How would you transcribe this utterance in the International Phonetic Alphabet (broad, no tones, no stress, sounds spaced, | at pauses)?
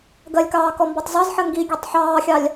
ɡ ɜ lʲ k ɑː k ɔ m b ɒ tˤ z ɑ z ħ ɜ ŋ ɡ i ɡʲ ɛ tˤ ħ ɑː xʲ ɑ lʲ